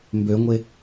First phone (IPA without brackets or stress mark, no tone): m